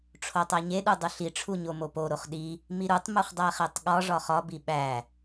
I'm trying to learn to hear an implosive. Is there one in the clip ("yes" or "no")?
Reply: yes